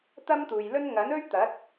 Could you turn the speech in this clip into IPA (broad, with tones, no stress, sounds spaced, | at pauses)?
t̪ ɐ˥ m t̪ uː˨ j l ɵ˥ n ŋ ɐ˨˥ n ɵ˥ ɥ t̪ ɐ˨˥ t̚